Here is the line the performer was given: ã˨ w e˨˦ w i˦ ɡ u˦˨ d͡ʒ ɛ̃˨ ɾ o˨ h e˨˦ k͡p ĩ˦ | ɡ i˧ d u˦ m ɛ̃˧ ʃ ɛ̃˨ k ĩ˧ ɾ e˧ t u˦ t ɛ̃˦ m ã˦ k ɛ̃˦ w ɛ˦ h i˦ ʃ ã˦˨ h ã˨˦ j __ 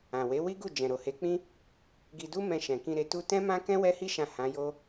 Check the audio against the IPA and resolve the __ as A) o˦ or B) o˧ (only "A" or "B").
A